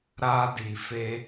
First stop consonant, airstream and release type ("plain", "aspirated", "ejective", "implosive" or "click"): plain